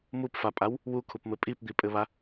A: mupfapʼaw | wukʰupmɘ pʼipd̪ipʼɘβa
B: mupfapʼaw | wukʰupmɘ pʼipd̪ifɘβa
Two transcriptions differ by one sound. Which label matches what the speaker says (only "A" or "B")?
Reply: A